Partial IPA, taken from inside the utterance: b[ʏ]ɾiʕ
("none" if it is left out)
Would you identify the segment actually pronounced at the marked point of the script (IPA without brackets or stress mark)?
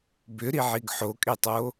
ʏ